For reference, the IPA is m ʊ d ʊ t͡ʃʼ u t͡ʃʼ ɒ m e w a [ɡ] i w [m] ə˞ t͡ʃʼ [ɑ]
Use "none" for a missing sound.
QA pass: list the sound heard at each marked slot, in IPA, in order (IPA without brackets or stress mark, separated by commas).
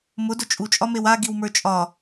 ɡ, m, ɒ